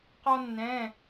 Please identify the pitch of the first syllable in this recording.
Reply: high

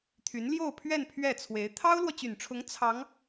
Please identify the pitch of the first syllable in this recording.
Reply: rising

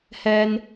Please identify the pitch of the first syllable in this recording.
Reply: high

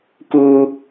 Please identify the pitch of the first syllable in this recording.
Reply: high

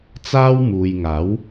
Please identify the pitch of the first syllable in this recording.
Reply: high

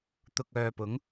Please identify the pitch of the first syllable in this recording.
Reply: low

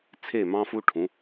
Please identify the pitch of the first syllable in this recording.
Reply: falling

